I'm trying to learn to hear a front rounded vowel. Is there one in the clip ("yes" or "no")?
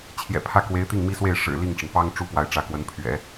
no